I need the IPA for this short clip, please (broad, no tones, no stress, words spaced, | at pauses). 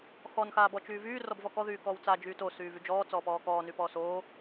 xɔn xaːbɔt͡ʃyːvyː rɔbvɔkɔ ðyːkɔːwt͡sa d͡ʒyːto syːvyd͡ʒɔː t͡sɔːpɔːkɔː nypɔːsoː